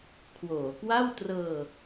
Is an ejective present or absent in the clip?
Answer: absent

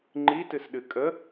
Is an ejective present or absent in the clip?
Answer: present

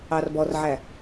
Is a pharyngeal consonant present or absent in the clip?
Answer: present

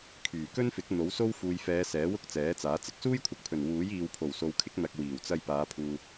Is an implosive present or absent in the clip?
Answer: absent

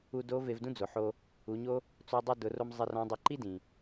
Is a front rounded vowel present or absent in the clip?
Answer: absent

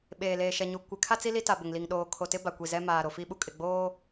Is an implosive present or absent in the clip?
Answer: present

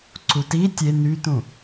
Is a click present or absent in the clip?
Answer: present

